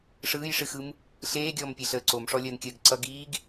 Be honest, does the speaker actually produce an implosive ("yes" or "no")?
no